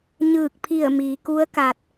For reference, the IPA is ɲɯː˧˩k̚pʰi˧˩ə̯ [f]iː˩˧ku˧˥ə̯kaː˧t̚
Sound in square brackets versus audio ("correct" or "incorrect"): incorrect